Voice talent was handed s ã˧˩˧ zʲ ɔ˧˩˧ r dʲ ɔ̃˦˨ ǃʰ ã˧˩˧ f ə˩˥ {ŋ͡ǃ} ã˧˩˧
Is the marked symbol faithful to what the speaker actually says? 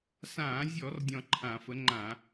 yes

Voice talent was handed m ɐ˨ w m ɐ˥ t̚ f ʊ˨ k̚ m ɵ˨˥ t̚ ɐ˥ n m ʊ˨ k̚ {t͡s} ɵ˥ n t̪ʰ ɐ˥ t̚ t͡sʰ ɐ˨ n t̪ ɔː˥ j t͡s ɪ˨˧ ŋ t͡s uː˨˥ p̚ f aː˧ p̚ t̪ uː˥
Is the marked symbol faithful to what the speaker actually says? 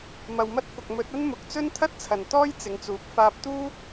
yes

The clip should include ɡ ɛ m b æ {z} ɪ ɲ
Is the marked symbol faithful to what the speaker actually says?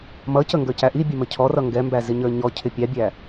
yes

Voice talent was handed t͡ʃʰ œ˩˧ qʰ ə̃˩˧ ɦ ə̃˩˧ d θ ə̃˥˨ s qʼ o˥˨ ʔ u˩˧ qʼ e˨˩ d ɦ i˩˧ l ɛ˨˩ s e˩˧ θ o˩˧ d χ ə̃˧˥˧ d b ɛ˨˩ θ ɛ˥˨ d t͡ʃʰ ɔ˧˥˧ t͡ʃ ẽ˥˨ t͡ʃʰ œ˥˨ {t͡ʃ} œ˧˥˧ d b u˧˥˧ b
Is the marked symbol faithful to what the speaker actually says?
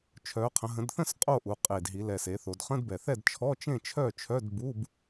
no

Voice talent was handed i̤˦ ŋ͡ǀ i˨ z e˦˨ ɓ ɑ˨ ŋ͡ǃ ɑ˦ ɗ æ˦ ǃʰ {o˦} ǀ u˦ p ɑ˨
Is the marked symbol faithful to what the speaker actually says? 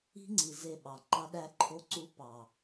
yes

